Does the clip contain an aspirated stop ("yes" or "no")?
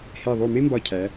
yes